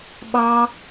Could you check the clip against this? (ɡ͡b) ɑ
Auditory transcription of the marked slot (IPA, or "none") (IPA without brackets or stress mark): ɓ